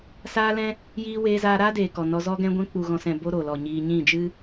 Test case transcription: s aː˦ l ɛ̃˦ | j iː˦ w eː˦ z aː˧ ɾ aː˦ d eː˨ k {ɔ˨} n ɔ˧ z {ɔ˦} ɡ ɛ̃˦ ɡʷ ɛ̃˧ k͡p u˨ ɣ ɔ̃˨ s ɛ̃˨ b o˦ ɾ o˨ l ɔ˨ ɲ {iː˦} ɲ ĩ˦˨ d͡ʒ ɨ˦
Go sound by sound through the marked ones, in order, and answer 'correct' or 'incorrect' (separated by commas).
correct, correct, incorrect